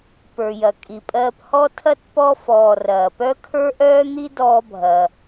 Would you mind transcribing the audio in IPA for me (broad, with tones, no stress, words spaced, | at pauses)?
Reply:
pə˞˨jɐ˨kʼi˨pʼɜː˦p hɔ˥ tʰɐ˥tpɔ˦ fɔː˨rɐː˩pœ˥ kʰə˞˥ʔœː˥n̪i˥ dɔː˦bʱɐ˩